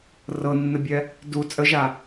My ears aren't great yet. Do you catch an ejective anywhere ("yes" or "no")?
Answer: yes